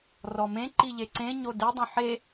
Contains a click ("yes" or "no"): yes